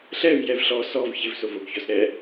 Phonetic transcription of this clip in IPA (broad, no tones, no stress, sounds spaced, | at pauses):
ɬ ɛ v j ɛ v ɬ ɔ s ɔ v ç ɪ v s o v o ɡ ç ɔ s ɾ ɛ